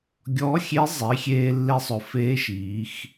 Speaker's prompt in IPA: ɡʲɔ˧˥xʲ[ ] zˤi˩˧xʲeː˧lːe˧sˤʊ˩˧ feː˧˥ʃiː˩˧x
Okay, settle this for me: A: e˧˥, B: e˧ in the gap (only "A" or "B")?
A